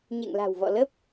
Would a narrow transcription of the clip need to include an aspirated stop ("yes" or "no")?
no